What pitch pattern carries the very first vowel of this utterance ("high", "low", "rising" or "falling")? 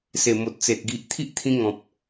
low